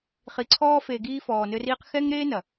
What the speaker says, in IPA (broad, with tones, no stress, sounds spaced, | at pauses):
χ i˨ ǀʰ ɔː˧ f e˨ ɡ iː˧ f ɔː˨ n ɘ˧ r iː˧ q x ɛ˦ ŋ ɾ eː˦ n ɐ˨